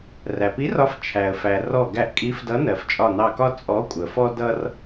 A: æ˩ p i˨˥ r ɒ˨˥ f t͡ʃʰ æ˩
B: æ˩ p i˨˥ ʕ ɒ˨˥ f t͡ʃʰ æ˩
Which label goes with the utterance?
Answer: A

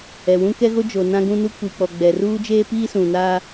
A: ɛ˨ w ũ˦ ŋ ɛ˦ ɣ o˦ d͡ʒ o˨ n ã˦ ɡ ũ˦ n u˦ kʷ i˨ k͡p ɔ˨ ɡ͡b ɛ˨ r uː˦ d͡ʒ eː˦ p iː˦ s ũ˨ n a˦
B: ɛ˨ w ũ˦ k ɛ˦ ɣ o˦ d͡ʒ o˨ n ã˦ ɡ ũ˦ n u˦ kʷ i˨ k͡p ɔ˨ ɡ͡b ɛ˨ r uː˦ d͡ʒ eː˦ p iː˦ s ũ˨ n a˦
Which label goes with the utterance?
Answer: B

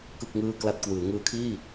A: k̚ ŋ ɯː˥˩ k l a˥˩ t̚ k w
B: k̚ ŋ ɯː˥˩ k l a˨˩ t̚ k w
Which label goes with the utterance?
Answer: A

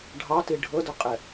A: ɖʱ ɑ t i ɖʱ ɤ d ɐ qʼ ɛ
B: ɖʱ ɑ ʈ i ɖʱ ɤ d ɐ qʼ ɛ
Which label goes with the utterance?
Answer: A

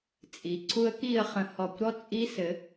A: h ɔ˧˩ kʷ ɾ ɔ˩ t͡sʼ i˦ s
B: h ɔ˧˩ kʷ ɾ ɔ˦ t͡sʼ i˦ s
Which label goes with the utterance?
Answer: B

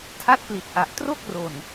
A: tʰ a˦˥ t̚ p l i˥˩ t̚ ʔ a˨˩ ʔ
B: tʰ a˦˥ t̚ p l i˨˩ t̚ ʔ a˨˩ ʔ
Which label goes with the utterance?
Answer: B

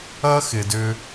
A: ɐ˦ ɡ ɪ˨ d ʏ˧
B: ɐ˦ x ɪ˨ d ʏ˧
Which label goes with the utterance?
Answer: B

